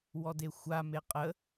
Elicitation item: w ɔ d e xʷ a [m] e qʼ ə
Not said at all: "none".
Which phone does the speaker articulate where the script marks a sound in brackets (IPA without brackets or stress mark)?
m